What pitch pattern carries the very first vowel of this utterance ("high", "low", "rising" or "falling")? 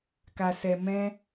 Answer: low